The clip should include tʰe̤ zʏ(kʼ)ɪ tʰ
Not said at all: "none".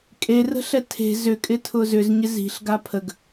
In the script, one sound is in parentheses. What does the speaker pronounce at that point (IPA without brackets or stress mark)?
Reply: kʼ